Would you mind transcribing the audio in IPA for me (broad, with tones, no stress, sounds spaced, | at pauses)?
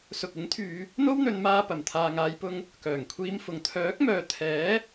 s ʊ˧ k̚ ɪ˨˥ ŋ t̪ʰ yː˨˧ | n̪ o˥ w n̪ ɵ˨˧ n m aː˧ p ɐ˨˩ m t̪ʰ aː˨ ŋ aː˨˧ j p ʊ˧ ŋ | k œː˨˩ ŋ kʷʰ iː˧ m f ʊ˨ ŋ t̪ʰ œː˨˥ k̚ m œː˨ t̪ʰ ɛː˨˥